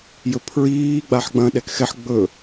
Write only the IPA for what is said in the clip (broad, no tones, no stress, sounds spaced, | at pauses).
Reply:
j ɵ pʰ ɹ iː ɡ͡b a ħ ɡ͡b ɐ̃ ɗ ɛ k x ɛ ħ ɡ͡b ɵ